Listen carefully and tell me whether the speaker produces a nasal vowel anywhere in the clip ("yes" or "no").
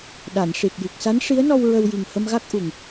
no